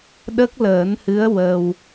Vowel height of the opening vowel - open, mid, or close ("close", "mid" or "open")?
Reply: mid